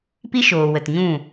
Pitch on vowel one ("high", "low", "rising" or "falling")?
high